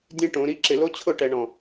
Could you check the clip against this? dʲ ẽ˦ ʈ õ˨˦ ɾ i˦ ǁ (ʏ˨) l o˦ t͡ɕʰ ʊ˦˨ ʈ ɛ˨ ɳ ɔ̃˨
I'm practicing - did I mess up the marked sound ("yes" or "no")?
yes